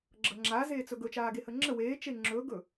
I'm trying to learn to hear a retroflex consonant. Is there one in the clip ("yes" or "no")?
no